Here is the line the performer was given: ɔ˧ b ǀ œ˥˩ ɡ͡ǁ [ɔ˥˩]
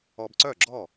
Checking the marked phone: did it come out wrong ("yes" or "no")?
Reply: no